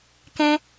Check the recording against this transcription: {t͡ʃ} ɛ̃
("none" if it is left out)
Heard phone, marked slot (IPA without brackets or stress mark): k